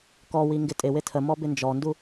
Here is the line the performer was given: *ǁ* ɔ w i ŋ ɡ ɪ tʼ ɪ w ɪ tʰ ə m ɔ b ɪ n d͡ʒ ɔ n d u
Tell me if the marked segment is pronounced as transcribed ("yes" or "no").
no